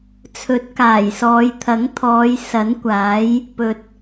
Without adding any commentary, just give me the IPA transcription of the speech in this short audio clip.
t͡sʰɵ˨˥t̚kaː˨˩jsɔː˨˧j t̪ʰɐ˨˥ŋt̪ʰɔː˨˧j sɐ˨˥nkʷaː˨˥j | pɵ˨t̚

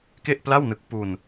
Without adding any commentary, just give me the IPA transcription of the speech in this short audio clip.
ke˥˩ʔpla˥˩wnɯ˦˥k̚ pu˧n

